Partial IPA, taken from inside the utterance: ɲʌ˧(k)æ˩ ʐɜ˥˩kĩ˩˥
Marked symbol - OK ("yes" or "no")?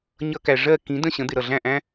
yes